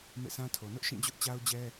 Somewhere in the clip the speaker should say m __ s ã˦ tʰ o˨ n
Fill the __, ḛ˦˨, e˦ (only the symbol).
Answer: ḛ˦˨